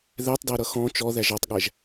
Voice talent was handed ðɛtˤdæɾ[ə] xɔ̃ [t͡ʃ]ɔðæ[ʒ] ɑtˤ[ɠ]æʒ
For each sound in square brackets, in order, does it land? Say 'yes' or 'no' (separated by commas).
no, yes, yes, yes